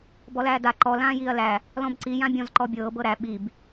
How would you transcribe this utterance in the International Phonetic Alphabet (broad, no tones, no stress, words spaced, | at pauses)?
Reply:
bɔlæːda ǃɔ lãːjiːɐ̯læ | lɔ̃bǀi jãbʲɔ̃z ǃɔbʲɤː bɤɾæ ɓib